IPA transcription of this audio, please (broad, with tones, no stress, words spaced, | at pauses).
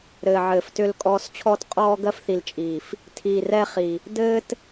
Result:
ɾɘː˨ʕɘː˨ftʏ˦˨lkʼɔː˦s t͡ɕʰɔː˦tqʼɔː˦ɡɜ˦fθi˨l t͡ʃʼiː˨f | tʰiː˨rɛ˦χi˨ | dɘː˦t